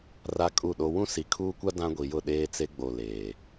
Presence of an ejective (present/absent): present